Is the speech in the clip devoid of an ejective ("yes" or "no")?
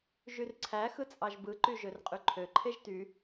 no